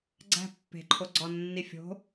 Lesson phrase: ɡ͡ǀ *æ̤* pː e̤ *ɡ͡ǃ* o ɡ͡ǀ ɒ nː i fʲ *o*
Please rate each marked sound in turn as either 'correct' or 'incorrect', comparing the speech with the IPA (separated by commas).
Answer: correct, incorrect, incorrect